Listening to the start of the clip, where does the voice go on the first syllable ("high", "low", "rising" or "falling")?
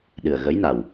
low